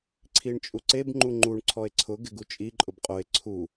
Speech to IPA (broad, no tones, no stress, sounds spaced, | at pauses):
ǀʰ i ɳ t͡ʃʼ u ǀ e b ŋ͡ǃ u ŋ͡ǃ u ɳ ǀʰ ɔ e̯ ǀʰ ʊ ɡ ɪ ɡ u t͡ʃʼ i ǃʼ ʊ b qʼ o e̯ ǀʰ u